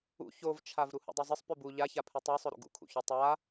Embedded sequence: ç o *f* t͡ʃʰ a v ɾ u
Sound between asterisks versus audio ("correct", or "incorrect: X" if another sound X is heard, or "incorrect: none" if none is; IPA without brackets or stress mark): incorrect: v